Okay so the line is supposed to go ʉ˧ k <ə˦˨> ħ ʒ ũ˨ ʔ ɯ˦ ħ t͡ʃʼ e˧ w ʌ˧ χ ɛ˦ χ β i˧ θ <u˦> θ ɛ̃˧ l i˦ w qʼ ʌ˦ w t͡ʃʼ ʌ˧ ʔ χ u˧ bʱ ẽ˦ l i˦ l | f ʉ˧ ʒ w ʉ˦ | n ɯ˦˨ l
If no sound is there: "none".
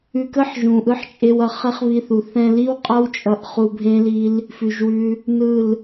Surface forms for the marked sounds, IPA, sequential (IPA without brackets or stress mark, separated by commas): ə˦, u˨